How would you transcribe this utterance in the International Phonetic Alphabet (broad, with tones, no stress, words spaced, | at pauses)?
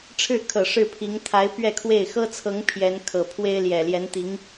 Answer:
ʈ͡ʂʰɻ̩˥˩kʰɤ˨˩ ʂɻ̩˥˩pʰi˧˥ŋ t̪ʰa˧˥ɪ̯ pɥɛ˥˧kʰwe˥˩ɪ̯ xɤ˥t͡sʰɤ˧˥ŋ pʰjɛ˧˥nkʰɤ˨˩ pʰwe˥ɪ̯ljɛ˨˩ljɛ˧˥nt̪i˧˥ŋ